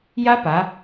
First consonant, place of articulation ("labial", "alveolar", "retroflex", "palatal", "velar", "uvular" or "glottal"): palatal